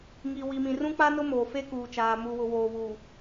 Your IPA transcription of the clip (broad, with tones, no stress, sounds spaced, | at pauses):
ŋ i˨ w i˨ m ĩ˨ r ũ˦ k͡p a˦ n ʊ˦ m oː˨ f e˦ k uː˨ t͡ʃ aː˨ m u˨ w ʊ˨ w oː˨ β u˨